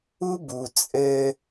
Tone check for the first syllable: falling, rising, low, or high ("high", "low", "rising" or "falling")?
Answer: high